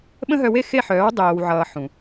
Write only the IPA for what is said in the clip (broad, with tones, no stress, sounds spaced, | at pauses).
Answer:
ɓ ə̃˦ ɦ œ˧ w e˦ x e˦˨ ħ œː˨˦ w dˤ oː˨ w ʕ ʌː˨ ħ ũ˨